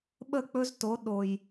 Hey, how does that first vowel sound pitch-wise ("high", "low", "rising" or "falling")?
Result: falling